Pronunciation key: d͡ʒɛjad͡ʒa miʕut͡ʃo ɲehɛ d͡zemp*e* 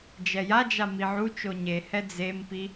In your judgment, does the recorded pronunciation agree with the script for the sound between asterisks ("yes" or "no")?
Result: no